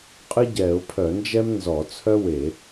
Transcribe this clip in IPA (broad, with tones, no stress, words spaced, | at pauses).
qʼɨ˥ ɟɛ˧˩˧ʊ̯ pʰœ˧˩˧nd͡ʒɛ˥m nzɔ˧˩˧t͡sʰœ˥we˧˩˧